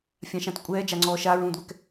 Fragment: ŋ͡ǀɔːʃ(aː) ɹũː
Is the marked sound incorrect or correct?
correct